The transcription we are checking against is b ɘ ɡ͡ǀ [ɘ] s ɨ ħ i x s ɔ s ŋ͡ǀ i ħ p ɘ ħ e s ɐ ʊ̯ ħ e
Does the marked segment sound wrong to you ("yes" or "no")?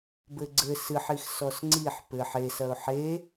no